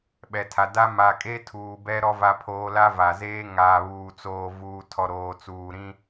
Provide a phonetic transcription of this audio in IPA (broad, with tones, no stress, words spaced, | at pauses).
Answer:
ɓɛ˨tʰa˨da˦ ma˨kʼe˦ tʰuː˨bɛ˦ɾɔ˦ va˦pʰoː˦ la˦va˨zeː˦ ŋaː˨βuː˨t͡soː˨ vuː˨tʰɔ˨ ɾoː˨ t͡suː˨ɾĩ˦